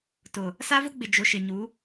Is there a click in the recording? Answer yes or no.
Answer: no